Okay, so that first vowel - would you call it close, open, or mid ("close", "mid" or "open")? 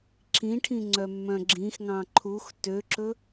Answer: close